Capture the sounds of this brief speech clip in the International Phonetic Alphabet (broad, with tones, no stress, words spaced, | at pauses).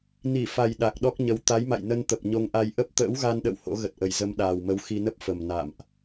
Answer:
ni˧˩fa˨˩j ɗa˨˩k̚ɗɔ˦˥k̚ɲə˨˦w t̪a˨˦jma̰˧˨jnə˧nt̪ə˨˩p̚ ɲo˧ŋʔa˧j ʔə˦˥p̚ t̪ə̰ː˧˥wɣa˧nɗə̰˧˨w ho̰˧˥ɣə˨˩t̚ʔə˨˩jzə˧m ɗaː˨˩wmə˨˦w xi˧nə˦˥p̚fə˨˩m na̰˧˨mʔ